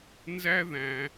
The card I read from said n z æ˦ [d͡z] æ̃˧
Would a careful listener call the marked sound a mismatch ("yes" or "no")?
yes